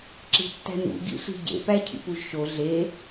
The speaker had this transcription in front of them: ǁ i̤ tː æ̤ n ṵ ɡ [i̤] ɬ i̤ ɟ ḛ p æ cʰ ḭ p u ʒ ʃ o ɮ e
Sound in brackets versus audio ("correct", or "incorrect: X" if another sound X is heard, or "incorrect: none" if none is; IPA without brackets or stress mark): incorrect: ḭ